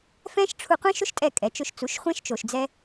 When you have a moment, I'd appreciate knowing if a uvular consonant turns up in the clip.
yes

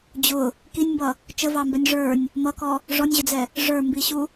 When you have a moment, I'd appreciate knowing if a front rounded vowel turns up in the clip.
no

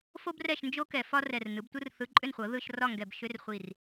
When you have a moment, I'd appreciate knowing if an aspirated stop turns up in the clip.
no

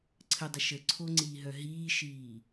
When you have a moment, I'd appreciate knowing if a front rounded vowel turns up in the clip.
yes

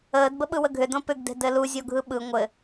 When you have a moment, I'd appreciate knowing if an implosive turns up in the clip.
yes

